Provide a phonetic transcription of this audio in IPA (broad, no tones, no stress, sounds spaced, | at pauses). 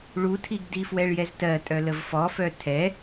ɭ u tʰ i ɡ d i f w ɛ ɭ j ɛ z t ɜ tʼ œ l ə v f ɔ f œ tʰ ɛ